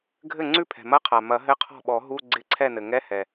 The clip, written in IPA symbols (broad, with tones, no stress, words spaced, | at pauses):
ɡʱɘ˥˩ ŋ͡ǀʉ˥˩pʰɛ̤˩mɐ˧˥˧qʰa˩ mɐ˨˩˦ɦɘ˧˥˧qʰɔ̤˥˩ɓɔ˨˩˦ ɦu˧˥˧ɡ͡ǀɪ˧˥˧ǀʰɛ˥˩nɘ˩ ŋɛ˧˥˧hɛ˩